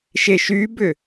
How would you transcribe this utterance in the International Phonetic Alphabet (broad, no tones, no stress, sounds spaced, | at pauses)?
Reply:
ʃ e ʃ y b ʏ